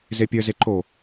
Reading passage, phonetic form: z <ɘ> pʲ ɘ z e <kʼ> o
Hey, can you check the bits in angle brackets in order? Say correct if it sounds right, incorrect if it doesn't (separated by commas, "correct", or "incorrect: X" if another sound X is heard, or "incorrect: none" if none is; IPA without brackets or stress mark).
incorrect: e, incorrect: ǃ